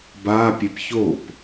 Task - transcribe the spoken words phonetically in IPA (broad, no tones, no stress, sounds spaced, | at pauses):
b a pʲ e p ç o p